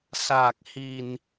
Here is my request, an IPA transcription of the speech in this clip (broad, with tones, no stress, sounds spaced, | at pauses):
s aː˨˩ k̚ h i˨˩ n